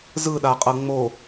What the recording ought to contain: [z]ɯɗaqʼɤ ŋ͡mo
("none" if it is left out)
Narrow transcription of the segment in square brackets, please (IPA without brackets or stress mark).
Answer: z